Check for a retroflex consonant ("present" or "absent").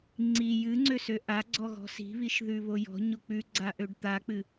present